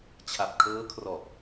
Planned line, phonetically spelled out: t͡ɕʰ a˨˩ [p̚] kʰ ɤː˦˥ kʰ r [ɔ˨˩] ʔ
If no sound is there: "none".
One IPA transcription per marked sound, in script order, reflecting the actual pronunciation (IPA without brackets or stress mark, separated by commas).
p̚, ɔ˨˩